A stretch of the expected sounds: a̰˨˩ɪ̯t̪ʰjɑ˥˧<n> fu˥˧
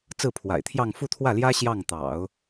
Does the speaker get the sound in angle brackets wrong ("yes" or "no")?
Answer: yes